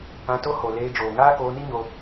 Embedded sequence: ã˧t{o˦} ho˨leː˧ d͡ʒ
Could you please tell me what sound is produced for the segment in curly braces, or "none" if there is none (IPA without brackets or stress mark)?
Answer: o˦